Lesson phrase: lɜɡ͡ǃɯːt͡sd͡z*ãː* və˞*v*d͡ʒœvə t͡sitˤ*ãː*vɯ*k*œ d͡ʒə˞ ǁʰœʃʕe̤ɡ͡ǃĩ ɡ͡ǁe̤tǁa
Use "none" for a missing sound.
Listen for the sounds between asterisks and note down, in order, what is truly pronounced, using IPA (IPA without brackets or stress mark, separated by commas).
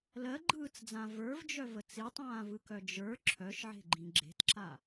ã, v, ãː, k